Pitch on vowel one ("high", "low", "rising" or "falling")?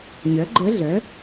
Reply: rising